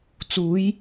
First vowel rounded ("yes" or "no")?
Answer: yes